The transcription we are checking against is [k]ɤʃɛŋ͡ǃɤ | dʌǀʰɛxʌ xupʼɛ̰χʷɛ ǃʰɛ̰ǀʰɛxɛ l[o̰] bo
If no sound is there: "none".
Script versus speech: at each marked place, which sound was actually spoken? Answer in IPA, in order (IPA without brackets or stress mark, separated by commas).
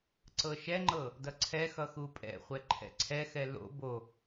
ǀ, o̰